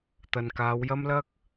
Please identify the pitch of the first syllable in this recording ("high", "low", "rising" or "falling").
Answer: low